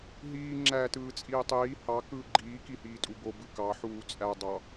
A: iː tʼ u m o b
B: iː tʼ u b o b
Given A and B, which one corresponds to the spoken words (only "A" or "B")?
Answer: B